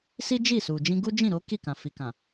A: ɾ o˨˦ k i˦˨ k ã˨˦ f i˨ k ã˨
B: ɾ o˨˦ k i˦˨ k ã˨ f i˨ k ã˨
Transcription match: B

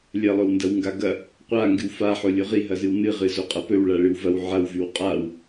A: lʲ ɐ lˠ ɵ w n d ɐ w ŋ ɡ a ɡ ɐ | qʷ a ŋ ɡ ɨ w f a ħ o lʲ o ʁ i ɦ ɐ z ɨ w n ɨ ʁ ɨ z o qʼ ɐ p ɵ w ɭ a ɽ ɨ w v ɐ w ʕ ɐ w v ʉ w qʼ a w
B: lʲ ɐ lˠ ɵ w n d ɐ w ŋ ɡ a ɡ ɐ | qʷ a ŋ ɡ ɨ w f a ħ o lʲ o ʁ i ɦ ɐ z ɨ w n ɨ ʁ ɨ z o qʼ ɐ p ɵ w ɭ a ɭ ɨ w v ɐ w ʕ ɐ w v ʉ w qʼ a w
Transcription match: B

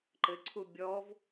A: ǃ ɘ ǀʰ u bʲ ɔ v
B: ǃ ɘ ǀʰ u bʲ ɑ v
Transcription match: A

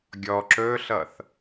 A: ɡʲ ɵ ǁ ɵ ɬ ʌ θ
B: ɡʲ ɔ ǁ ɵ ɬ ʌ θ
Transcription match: B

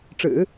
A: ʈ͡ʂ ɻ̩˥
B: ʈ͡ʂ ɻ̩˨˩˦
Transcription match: B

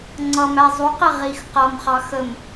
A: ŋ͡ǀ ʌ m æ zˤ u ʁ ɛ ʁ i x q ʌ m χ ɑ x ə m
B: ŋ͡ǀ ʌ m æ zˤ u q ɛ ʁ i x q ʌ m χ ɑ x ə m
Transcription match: B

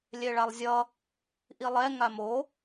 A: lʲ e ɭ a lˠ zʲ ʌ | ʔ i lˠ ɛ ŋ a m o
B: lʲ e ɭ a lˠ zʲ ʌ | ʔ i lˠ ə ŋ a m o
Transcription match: A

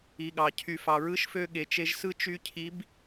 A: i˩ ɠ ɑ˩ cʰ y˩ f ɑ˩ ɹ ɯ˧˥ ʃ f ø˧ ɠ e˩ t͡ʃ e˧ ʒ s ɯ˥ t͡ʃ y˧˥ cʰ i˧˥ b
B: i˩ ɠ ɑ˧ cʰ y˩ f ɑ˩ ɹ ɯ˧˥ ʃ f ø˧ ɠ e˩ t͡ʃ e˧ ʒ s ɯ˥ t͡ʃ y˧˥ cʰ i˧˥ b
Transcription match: A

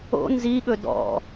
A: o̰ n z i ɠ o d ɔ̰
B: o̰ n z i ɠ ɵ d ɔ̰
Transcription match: B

